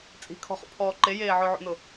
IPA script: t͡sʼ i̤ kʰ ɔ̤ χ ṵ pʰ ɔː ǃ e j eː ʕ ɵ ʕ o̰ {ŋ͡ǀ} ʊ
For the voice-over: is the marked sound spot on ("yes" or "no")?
no